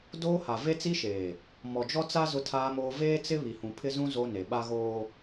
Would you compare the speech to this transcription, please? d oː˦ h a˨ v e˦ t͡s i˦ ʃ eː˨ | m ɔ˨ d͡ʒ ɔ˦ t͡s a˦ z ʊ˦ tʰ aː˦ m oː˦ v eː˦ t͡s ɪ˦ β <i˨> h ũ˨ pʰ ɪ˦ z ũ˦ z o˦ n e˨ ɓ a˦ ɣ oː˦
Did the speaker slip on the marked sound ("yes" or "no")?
no